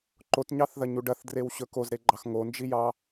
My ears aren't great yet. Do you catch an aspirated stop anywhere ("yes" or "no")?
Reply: no